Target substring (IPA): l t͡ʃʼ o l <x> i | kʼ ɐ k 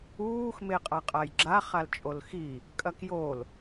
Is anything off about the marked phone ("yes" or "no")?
no